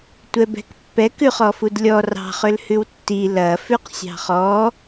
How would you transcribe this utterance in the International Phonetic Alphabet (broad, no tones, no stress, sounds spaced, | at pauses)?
tʷ ɛ b ɛ̤ k pː ɛ k ʉ χ ɔ f u d lʲ ɔ r ɑ̤ χ ø l h ʉ w tː i l ɐ f ʉ q sʲ ɑ̤ χ ɔ